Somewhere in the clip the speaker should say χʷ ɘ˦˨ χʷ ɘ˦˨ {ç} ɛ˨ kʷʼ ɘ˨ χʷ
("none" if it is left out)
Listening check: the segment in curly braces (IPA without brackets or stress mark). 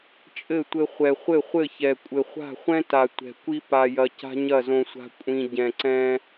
ç